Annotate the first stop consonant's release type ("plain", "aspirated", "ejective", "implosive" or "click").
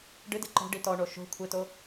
plain